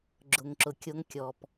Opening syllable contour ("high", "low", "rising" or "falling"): low